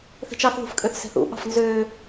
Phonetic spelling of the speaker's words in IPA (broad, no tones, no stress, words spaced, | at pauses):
θe̤t͡ʃɑθðṳfkʼøθ sɛ̤θṵɓɑ̤f nzø